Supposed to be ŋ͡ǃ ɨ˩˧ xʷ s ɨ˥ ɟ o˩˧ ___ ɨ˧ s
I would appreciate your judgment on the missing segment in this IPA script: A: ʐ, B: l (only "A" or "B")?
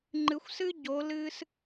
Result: B